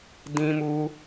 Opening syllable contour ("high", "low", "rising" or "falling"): high